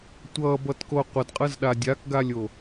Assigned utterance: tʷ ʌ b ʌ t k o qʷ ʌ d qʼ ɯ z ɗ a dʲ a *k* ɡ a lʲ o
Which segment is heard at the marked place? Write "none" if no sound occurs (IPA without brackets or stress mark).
k